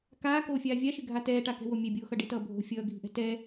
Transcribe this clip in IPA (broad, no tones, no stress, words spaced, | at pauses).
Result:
kaːkoːfʲaː vʲaʃɪɡʱa tɛːʈakɛ̤wo mʲɛbʲoːxʌ ɖɪtʌː bʱo̤ fʲʌːɡʱi̤ʔɛ̤ tɛ